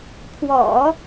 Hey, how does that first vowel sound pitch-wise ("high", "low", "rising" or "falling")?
low